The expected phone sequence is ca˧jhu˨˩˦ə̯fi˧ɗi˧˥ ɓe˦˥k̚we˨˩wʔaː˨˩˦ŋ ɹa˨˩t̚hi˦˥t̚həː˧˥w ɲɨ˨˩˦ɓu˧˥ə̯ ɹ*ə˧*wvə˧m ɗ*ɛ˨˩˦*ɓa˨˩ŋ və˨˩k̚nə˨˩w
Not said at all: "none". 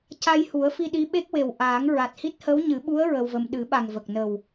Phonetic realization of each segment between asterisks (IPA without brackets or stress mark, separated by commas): ə˧, ɨ˨˩˦